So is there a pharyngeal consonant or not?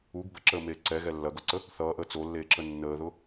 no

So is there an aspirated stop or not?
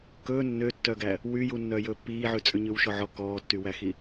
no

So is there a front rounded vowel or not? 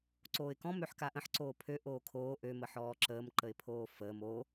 yes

